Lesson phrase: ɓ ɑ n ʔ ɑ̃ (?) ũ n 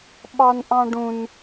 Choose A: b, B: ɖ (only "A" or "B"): B